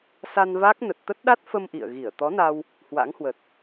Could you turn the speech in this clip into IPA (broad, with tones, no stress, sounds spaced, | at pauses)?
s a˧ n v a˦˥ k̚ n ə˨˩ t̚ t̪ ə˦˥ t̚ ɗ a˦˥ t̚ f ə˧ m ʔ ḭ˧˨ ə̯ ɣ i˧˩ ə̯ t̪ ɔ˨˦ n a˧ w | h w a̰˧˥ ŋ h w ə˨˩ t̚